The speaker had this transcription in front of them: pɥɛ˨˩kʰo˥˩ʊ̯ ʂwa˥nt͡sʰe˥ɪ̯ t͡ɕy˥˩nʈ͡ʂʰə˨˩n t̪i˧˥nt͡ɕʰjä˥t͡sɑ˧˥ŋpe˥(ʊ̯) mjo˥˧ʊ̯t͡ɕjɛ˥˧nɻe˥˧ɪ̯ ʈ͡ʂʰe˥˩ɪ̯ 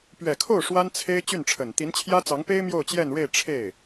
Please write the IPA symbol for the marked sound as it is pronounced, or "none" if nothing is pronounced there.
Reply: ɪ̯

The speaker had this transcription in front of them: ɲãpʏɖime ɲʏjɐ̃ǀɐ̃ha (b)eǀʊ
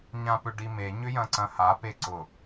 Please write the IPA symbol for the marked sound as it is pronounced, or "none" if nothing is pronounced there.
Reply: p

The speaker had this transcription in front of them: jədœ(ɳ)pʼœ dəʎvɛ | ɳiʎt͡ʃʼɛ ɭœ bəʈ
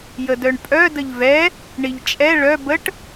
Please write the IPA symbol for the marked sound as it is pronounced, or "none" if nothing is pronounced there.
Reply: ɳ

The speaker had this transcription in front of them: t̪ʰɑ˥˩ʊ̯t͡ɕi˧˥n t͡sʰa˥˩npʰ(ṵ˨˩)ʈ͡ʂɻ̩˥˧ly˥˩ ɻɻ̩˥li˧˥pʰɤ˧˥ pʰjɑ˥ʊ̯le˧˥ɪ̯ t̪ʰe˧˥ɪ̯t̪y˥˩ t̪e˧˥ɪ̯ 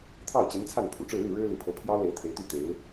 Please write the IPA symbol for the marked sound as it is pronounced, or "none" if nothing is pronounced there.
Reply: ṵ˨˩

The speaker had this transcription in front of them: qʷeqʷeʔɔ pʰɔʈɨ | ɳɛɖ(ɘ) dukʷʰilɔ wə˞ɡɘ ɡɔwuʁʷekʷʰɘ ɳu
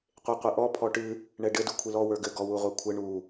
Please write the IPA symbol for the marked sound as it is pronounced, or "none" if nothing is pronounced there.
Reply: ɘ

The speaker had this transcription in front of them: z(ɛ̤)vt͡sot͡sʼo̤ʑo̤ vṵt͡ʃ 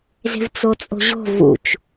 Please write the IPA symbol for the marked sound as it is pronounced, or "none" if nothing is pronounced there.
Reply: e̤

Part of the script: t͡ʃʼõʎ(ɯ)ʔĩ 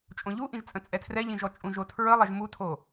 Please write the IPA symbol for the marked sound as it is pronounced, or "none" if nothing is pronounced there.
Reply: u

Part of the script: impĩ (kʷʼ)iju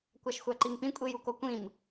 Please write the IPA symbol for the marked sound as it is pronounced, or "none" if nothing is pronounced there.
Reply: kʷʼ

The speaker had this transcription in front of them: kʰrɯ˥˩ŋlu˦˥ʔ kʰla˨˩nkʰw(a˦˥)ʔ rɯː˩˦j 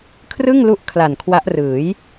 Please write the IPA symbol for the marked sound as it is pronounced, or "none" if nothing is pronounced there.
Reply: a˦˥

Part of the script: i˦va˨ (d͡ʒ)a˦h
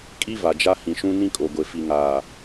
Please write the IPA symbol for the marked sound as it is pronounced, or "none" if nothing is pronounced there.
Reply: d͡ʒ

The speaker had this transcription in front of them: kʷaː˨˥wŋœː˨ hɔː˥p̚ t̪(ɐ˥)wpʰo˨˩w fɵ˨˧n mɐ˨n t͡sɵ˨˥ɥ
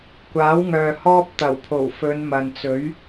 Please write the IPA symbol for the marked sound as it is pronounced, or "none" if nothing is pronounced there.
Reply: ɐ˨˩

